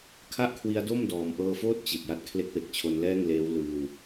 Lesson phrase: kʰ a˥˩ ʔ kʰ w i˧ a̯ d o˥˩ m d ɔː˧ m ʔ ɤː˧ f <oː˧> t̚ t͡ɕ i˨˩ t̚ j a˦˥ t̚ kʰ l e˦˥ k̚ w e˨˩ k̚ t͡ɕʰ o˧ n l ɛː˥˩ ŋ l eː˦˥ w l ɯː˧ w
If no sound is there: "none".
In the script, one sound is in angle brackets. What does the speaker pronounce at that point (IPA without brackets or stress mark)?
oː˥˩